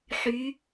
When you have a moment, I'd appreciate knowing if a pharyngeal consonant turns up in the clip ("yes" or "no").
yes